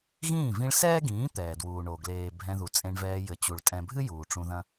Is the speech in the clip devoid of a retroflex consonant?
no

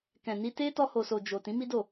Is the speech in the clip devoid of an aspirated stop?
yes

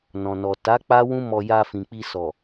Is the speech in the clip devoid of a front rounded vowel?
yes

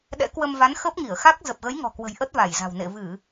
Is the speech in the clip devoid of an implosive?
no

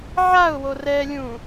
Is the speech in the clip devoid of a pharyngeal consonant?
no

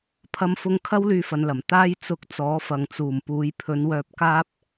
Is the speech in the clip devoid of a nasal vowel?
yes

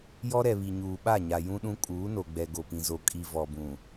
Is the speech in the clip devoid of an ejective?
no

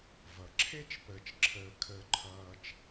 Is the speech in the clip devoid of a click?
no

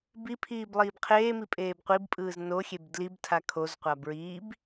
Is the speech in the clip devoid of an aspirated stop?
no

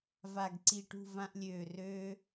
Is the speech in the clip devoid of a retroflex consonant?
no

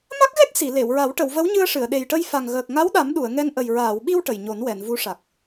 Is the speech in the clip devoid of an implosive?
no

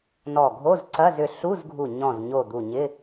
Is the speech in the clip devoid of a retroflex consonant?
yes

